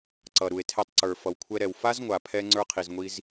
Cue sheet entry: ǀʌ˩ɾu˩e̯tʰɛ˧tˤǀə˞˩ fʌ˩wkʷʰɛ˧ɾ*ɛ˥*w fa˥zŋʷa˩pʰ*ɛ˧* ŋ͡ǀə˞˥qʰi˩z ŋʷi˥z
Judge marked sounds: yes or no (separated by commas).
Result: no, yes